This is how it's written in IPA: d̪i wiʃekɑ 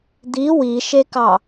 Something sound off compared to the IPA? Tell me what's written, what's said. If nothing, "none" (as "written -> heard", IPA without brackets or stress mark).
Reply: none